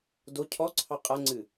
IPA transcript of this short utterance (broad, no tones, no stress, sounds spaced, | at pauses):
d o cʰ ɔ ǀʰ ɑ qʼ a ŋ͡ǀ ɨ